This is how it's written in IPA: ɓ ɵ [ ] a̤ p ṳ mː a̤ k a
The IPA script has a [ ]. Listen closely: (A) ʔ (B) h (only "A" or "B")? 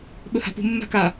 B